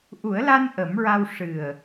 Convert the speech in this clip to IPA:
ʔu˨˩˦ə̯la˧n ʔə˨˩˦mɹa˧w ʂɨ˨˩ə̯

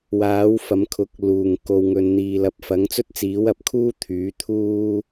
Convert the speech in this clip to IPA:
waː˨˥wfɐ˨˧mkʰʊ˨˥k̚ luː˨˩ŋko˨w ŋɵ˨nn̪iː˨lɐ˨˥p̚fɐ˨˥ŋ t͡sɵ˥t̚t͡siː˨˥wɐ˨p̚kʰuː˥ t̪ʰyː˨˥ t̪ʰuː˥

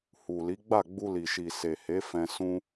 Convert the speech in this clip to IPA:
hu˨li˨˦ɡ͡ba˦˨ ɡ͡bu˧li˨ʃi˨ se˨he˨˦fɛ̃˧ sũ˧

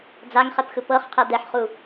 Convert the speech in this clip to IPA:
d͡zaŋχɛpxɯ pɤχqʰɛ d̪ɛħχu

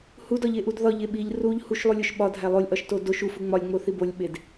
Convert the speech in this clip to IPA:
hudɒʎeʔud ðɒʎe ɓiʎ ruʎ huʃlˠulʲoʃ ɓɒdʱæ lˠolʲʔɒʃto doʃ ufu ŋ͡mɒlʲŋ͡moθi bolʲɓed

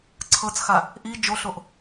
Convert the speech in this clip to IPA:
ǀʰɤt͡sxa | ʔi d͡ʒoɬoʔ

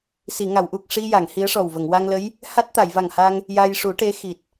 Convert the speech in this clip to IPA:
si˨˩˨ŋa˨˩˨wʔu˨˩k̚ ʂi˧ja˨˩˨ŋ hi˧˥ə̯ʂɔ˨˩wvə˨˩˨ŋ wa˧ŋlə˧˥j | ha˦˥t̚t̪a˨˩˨j va˨˩ŋha˧ŋ | ja˧jʂu˨˩˦ʈe˧˥ xi˨˩t̚

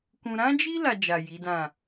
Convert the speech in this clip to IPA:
kũ˧ ɾã˦d͡ʒi˦ la˧d͡ʒa˨ ji˨˦dã˦˨

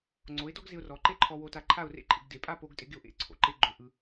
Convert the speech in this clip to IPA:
ŋ͡ǀo˩˧ɪ̯dɔ˥ɡ zɪ˧ʊ̯rɔ˩˧ǃe˥ ǃʰɔ˧wo˧ta˧ǃʰa˥˧ʊ̯ rḛ˥˧ǃʼɪ˩˧ɡde˩˧ pʼa˥˧po˧ɡtʼɪ˧ ɡɪ˥ʊ̯ʔḛ˥˧ǀʰo̰˩˧ǃe˥ ɡ͡ǃo˧ ʔɯ˧

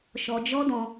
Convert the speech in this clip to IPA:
ʃɔ˧d͡ʒɔ˦dɔ̃˧

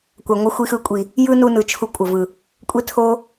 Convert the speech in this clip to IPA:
kʷa˨ŋʷʌ˧ xʷi˧xɯ˧kʷʼi˨ | jɯ˦nu˧nɯ˨ t͡ʃʰu˧kʷʼʌ˨vɯ˨ | kʷʼe˦ tʰo˦

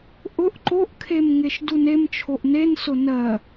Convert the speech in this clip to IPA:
ʔʊʔ ǃoʔkʰem ŋeʃdunemt͡ʃʰoʔ nensʊ nɜ

